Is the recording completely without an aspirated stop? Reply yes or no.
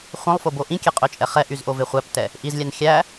yes